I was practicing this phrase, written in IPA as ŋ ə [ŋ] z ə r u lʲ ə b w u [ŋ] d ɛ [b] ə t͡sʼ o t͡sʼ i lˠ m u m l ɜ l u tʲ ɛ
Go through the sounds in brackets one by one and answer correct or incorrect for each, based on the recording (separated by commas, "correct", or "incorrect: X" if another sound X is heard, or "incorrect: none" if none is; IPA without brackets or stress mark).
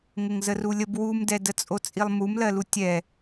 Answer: correct, incorrect: m, incorrect: d